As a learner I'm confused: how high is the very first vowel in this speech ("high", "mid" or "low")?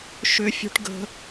high